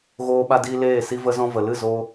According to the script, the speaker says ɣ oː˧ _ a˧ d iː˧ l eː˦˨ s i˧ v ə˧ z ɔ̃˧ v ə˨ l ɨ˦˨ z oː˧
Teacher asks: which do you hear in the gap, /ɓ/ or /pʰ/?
ɓ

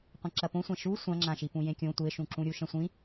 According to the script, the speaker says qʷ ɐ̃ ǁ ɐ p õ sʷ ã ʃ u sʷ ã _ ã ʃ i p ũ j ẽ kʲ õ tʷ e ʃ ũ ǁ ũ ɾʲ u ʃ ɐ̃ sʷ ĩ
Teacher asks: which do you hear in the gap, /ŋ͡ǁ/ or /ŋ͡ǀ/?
ŋ͡ǁ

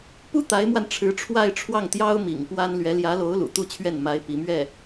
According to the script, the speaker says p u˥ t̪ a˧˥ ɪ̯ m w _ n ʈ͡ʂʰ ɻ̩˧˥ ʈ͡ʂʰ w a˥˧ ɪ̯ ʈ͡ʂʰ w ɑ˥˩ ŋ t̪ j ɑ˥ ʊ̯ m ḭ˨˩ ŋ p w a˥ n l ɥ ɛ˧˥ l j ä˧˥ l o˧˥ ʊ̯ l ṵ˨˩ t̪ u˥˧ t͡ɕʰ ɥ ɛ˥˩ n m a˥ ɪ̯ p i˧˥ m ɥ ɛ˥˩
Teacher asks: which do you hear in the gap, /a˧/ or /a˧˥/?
a˧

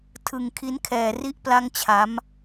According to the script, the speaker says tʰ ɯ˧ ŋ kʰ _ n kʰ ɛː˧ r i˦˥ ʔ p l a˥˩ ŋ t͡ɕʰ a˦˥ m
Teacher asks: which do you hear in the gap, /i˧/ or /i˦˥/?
i˦˥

